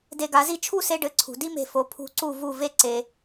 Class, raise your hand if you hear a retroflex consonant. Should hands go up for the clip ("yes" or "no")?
yes